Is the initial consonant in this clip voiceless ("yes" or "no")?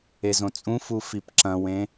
no